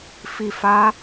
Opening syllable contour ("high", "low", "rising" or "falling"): low